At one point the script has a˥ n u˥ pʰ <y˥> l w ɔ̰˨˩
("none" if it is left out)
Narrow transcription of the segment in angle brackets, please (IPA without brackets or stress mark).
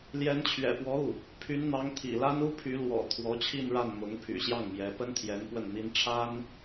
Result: y˧˥